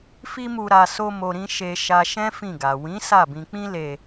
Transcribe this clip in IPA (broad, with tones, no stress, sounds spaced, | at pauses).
f i˦ m u˧ ɾ a˧ s o˧ m o˧ ɾ ĩ˦ ʃ e˧ ʃ a˧ ʃ ɛ̃˦ f ĩ˦˨ ɡ a˨ w ĩ˨˦ s a˦˨ b ĩ˧ k͡p ĩ˦ l e˧